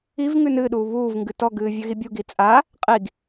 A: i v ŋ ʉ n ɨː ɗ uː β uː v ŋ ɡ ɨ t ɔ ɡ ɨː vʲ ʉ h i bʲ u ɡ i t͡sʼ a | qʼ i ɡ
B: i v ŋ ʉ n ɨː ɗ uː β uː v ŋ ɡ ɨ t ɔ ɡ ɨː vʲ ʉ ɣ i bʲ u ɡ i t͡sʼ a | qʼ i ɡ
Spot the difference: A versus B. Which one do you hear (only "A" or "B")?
B